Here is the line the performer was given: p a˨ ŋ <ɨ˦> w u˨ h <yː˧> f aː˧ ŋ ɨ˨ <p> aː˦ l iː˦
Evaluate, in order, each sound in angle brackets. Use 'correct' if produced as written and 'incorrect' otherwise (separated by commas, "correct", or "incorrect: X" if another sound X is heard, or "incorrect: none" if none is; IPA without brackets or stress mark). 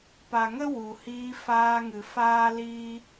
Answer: incorrect: ə˦, incorrect: iː˧, incorrect: f